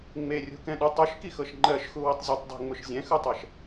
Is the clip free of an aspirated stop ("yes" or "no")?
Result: yes